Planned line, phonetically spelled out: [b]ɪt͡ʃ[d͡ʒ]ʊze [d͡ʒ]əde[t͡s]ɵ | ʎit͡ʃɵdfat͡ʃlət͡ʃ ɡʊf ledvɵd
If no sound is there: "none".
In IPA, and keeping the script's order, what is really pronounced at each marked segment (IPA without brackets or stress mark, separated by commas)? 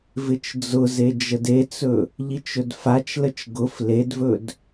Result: v, d͡z, d͡ʒ, t͡s